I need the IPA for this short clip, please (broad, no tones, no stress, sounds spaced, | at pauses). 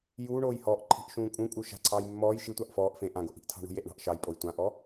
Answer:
j uː ɳ oː j h ɔː ʔ ǃʰ i̤ ʔ ʃ ũː kʼ ũ kʼ u ʃ a̤ ǀʰ ɑː j mː ɔː j ʃ i tʷ ɑ ʔ f ɔː ʔ f ẽ ʔ ã ɡ o ʔ i̤ ʔ tʰ ɑ̤ ɳ ṳ j e ʔ ɳ ɑ̤ ʔ ʃ ɑ j pʼ o j tʷ ã ʔ ɔ